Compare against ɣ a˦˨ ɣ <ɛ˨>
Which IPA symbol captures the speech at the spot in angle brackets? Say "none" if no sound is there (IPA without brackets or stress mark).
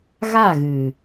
ɨ˨